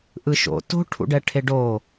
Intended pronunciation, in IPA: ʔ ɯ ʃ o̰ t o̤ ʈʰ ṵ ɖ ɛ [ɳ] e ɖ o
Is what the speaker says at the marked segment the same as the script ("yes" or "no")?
no